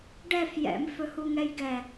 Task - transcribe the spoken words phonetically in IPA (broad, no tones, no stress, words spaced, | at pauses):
ɖɛf jɛ̰mfɵhuŋɛj ɡɛ